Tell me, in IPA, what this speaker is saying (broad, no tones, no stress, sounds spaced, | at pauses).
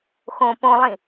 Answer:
x õ p õ lˠ ĩ